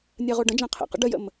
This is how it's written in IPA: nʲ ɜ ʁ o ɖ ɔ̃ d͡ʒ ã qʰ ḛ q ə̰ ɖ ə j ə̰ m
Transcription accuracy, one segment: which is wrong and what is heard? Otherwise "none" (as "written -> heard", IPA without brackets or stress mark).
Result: ɔ̃ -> ə̃